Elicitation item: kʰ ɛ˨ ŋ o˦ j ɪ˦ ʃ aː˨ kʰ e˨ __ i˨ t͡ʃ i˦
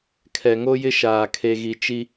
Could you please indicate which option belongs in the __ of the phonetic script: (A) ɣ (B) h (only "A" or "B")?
A